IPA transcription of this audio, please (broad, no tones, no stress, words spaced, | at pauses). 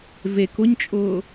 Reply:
vek ʊɲt͡ʃʼʊː